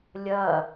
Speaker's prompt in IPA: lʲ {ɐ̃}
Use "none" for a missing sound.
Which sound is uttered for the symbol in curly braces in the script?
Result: ɐ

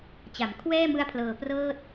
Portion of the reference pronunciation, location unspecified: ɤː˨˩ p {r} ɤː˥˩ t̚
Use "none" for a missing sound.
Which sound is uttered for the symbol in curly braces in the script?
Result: r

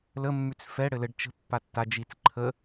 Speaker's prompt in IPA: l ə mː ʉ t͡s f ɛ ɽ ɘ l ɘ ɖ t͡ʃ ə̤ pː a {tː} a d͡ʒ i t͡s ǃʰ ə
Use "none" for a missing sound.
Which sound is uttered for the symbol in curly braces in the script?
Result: tː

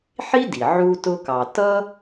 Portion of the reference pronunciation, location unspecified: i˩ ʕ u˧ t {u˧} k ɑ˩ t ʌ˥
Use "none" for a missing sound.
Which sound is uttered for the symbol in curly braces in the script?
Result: ʊ˧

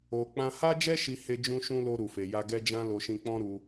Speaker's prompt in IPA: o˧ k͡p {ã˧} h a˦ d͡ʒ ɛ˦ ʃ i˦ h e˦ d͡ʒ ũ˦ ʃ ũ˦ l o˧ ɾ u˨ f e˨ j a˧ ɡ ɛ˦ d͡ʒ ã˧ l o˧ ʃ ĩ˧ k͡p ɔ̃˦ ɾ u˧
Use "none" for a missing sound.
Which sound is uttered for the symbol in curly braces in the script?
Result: ã˧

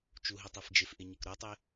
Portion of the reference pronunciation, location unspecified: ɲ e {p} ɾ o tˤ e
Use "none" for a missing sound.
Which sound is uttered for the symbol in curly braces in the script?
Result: k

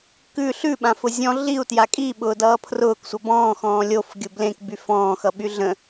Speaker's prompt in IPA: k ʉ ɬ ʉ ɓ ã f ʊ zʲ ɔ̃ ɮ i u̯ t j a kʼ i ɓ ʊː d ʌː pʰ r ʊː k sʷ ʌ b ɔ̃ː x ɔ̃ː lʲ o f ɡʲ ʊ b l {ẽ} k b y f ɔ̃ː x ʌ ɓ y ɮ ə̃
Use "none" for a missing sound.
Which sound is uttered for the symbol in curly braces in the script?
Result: ẽ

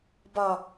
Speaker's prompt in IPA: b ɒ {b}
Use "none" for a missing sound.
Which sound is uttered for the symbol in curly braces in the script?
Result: none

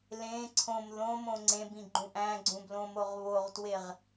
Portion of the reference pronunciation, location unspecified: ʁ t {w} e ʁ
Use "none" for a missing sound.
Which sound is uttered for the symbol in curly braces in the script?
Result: w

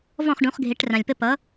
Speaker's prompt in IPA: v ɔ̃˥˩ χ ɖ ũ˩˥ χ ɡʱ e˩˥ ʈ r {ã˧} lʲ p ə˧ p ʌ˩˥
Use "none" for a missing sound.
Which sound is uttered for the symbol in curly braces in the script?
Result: ã˩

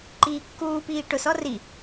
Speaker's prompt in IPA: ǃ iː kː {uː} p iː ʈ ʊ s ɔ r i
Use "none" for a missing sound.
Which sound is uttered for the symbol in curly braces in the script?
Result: uː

